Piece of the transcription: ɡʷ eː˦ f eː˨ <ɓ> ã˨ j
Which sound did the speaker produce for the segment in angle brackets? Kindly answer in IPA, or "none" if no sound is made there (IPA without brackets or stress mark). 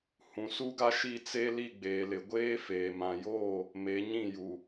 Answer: m